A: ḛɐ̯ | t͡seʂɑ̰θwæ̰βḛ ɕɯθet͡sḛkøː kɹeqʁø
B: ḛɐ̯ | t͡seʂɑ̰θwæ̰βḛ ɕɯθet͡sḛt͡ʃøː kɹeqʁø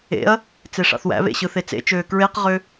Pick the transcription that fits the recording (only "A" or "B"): B